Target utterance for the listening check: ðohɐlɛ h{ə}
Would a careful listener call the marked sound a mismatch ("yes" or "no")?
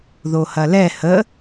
no